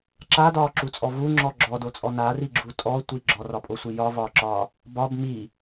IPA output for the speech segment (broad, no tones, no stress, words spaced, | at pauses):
ǁadɒːǁut͡sʼɔ vuŋ͡ǁɔ ɡ͡ǁɔdot͡sʼɔ nariɡ͡ǁu tʼɔtʷi ɡ͡ǁɔrɒpʼosʷi jɒvɒːǁɒː | bɒb mi